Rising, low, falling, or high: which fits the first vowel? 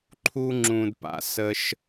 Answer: high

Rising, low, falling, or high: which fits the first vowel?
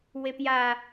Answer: low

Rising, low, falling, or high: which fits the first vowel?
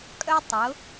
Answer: high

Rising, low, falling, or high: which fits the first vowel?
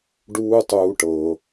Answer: high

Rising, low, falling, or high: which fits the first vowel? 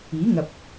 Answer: rising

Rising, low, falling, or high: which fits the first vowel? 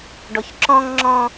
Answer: low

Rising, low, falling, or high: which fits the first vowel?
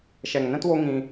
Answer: low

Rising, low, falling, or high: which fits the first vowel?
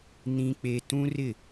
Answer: high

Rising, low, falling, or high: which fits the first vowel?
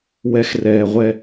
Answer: high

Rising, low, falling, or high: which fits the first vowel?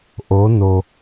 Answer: rising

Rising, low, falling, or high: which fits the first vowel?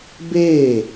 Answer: falling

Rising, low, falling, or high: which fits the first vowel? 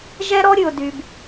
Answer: high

